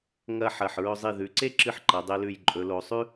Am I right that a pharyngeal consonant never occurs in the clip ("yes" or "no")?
no